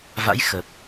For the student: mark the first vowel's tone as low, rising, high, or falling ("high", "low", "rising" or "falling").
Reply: rising